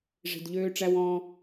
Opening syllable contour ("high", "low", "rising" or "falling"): low